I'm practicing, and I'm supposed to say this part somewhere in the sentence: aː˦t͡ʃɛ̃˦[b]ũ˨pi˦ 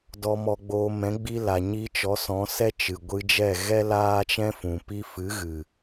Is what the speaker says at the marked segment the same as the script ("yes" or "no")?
no